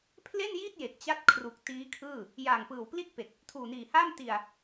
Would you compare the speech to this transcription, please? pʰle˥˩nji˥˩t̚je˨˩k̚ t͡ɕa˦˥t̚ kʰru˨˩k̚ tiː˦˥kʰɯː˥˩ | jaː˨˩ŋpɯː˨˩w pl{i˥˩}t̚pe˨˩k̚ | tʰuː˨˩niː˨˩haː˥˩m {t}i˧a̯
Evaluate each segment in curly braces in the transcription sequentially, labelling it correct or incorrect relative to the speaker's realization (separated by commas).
correct, correct